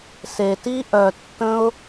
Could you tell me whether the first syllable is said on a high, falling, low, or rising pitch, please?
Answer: low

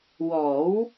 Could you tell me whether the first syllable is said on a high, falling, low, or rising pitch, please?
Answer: rising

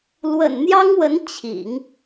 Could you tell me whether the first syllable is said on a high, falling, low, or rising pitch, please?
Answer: low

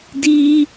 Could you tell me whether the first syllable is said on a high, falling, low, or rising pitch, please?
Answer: high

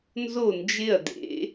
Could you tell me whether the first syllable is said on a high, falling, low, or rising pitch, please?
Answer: falling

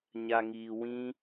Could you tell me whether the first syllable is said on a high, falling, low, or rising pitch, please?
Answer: low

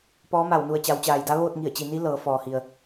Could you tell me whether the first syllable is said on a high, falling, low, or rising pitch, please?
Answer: rising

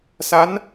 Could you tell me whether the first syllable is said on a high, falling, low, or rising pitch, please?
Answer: rising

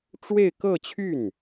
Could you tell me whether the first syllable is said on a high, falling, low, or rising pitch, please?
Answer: falling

